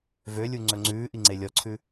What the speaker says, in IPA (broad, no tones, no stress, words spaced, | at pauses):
vølʲuŋ͡ǀɵ ŋ͡ǀʉːʔiŋ͡ǀe lʲɔǀʰʉ